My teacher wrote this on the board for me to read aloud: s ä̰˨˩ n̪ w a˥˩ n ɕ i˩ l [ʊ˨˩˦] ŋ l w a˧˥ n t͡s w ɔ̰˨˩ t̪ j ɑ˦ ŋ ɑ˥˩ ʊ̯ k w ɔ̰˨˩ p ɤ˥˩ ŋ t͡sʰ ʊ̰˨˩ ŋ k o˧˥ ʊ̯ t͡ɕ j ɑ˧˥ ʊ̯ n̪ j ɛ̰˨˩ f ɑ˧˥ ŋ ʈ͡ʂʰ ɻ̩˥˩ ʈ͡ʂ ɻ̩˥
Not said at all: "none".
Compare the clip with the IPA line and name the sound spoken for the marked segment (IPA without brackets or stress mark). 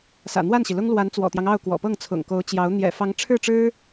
ʊ˥